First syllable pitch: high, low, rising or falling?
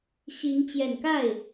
rising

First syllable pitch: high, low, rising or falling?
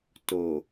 low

